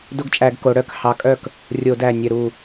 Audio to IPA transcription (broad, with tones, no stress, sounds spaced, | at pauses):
d o˦ ɡ t͡ʃʼ æ˧˩˧ ɡ k o˩˧ ɽ œ˥˩ k h ɑ˨˥ kʼ œ˥˩ k | rʲ o˧˩˧ d æ˧˩ nʲ œ˧˩ ɾ u˧˩